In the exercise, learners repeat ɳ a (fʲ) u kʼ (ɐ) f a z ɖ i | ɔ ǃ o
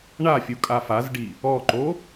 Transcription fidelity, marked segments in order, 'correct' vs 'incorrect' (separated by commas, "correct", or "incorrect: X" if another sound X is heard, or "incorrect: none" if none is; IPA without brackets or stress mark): correct, incorrect: a